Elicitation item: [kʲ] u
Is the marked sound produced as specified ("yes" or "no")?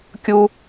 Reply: yes